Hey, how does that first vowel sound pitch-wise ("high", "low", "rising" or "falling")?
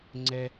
high